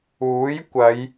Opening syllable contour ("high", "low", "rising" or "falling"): rising